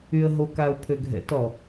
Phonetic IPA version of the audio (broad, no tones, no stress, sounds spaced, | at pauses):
y ə̯ ɦ o k a ʊ̯ pʰ ø ɡʱ ɛ̰ t ɔ